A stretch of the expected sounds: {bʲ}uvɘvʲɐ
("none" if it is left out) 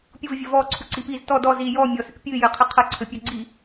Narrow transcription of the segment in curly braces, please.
pʲ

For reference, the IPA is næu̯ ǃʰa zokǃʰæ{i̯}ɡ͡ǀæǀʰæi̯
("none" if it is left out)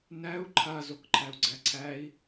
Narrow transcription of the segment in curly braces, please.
u̯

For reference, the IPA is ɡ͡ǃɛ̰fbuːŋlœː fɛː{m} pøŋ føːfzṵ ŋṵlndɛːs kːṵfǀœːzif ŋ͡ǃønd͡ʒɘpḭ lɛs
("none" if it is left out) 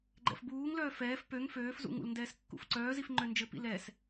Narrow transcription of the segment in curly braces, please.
f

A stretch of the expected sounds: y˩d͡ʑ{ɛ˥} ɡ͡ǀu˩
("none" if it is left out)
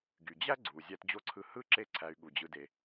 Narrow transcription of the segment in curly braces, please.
æ˥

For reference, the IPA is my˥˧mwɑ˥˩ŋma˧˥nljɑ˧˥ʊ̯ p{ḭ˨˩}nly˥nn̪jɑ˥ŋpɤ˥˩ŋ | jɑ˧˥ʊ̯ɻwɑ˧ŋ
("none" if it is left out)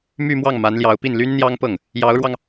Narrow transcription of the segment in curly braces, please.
i˥˩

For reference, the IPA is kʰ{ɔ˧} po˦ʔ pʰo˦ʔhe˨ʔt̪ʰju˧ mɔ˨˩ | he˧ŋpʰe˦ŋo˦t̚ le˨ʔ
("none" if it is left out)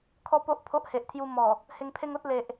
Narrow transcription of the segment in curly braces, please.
ɔ˧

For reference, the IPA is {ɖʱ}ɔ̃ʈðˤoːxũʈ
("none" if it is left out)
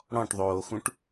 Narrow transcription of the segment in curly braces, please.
ɽ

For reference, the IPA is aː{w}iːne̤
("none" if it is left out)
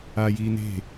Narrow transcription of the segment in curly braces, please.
j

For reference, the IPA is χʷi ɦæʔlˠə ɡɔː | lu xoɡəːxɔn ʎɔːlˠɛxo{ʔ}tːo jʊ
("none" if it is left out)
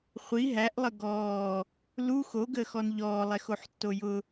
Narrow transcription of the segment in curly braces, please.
ħ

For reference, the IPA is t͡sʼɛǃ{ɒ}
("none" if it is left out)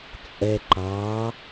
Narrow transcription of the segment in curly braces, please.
ɑ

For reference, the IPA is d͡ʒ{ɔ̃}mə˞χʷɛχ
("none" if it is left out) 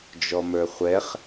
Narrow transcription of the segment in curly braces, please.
ɔ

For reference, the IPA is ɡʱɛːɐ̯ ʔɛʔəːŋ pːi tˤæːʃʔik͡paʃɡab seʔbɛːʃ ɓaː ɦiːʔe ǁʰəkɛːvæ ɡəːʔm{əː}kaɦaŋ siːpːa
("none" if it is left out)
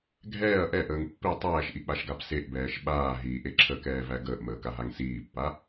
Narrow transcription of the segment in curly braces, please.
əː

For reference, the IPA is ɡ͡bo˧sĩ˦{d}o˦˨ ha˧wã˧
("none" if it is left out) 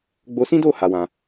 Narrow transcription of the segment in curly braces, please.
d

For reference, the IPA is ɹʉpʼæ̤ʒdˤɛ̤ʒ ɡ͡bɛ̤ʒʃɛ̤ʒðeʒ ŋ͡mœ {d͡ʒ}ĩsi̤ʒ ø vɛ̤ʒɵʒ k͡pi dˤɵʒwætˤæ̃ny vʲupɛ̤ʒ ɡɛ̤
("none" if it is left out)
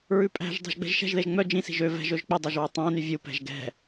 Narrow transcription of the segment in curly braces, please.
d͡ʒ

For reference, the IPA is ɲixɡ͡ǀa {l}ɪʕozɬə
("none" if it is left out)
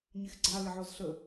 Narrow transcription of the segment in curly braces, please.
l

